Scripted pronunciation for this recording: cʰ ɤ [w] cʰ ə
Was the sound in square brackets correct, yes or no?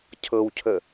yes